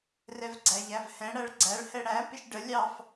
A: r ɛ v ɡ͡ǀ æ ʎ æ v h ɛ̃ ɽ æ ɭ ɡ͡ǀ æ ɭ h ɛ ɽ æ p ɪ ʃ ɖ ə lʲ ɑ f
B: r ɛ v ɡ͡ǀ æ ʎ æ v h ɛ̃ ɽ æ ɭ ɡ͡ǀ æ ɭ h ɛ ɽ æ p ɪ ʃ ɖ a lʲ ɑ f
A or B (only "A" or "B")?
A